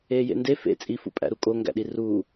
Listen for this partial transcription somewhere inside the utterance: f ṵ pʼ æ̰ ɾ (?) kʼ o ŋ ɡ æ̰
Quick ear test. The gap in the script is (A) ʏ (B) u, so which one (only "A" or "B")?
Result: B